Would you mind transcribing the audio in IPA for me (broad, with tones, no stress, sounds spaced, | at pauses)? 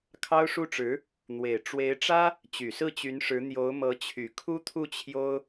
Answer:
kʰ ɑ˥ ʊ̯ ʂ u˥ ʈ͡ʂ ɻ̩˧˥ | n̪ w e˨˩ ɪ̯ ʈ͡ʂ w e˧˥ ɪ̯ ʈ͡ʂ ä˥ | t͡ɕ y˨˩ s ɹ̩˥˩ t͡ɕ y˧˥ n ʂ ɻ̩˧˥ n̪ j o˧˥ ʊ̯ m ɤ˧˥ t͡ɕʰ y˨˩ kʰ u˥ t̪ʰ u˥˩ t͡ɕʰ j o˥ ʊ̯